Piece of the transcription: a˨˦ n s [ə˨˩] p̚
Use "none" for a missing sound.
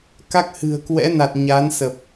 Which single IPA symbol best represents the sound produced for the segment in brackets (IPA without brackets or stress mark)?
ə˨˩